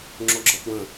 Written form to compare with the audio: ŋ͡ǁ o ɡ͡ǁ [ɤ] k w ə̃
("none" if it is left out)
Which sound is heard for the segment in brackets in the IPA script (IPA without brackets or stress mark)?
ɤ